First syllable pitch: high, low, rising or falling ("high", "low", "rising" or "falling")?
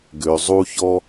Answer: low